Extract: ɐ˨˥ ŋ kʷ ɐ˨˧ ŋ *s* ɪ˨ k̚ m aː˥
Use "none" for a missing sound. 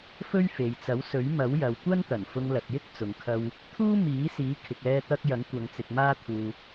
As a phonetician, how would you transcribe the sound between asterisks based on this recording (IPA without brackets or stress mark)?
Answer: t͡s